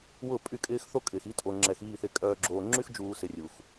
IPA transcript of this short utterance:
wʊ˦˨pʼy˦˨ kʼɪː˦xθo˦kʼɪː˨xi˦ tʼo˨ŋ͡ǁɛ˨xiː˦˨ θɪ˨kʼœː˨ ɡ͡ǁoː˨ŋ͡ǁy˦xd͡ʒuː˨ sɪ˨rʲu˨x

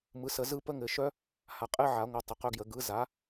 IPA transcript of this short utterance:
mɯ˩˥sə˨˩˦zɯ˦˥ pə˦˥ŋɘ˨˩˦ ʃœ˦˥ | ha˩˥qʼɘ˦˥ʕa˨˩˦ŋʷœ˩˥ tˤə˩˥qœ˦˥ɡjə˨˩˦ ɡɯ˩˥za˩˥

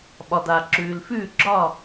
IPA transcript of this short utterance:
ɓɒ˩da˩ ǁʉː˩lfʉː˥˩ ɡ͡ǁɒ˥˩

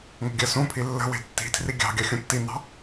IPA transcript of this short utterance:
ŋə̤ɡʲɜsũpʰi lːə̤we̤ tːi̤tʰri ɡʲɑ̤ ɡʲɑxʲũtːinɑ̤

